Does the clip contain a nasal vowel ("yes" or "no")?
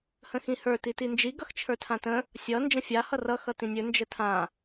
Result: yes